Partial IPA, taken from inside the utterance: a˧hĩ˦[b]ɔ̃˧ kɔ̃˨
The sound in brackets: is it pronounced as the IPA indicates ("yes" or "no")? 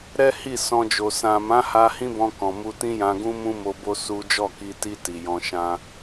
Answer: yes